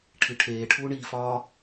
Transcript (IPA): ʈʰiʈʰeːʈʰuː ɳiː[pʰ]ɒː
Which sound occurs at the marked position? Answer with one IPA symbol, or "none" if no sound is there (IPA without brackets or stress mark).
f